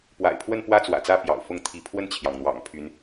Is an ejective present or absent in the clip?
absent